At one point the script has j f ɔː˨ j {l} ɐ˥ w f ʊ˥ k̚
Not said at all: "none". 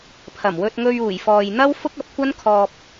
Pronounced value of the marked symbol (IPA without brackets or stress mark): n̪